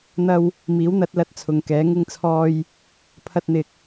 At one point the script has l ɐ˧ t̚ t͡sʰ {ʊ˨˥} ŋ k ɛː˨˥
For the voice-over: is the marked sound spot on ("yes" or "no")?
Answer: no